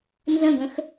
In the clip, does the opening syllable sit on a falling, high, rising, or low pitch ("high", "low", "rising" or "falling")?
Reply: falling